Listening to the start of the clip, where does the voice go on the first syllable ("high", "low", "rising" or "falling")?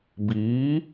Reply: rising